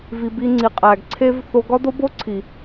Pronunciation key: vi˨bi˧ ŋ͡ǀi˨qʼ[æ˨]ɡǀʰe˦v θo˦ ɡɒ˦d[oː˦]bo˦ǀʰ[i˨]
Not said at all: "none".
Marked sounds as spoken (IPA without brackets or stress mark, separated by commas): æ˨, o˦, i˨